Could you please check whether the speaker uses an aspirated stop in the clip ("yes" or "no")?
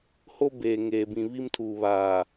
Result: yes